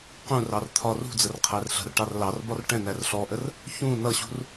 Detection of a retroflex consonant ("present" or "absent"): present